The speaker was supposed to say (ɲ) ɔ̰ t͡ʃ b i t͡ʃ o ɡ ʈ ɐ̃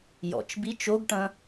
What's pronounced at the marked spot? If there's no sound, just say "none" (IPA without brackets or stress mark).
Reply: j